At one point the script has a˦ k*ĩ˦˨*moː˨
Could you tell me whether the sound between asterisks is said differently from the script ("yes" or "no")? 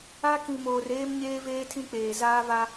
yes